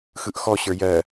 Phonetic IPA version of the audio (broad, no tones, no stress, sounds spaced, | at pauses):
x ɯ ʔ x ɔ ɕ ə˞ j ɜ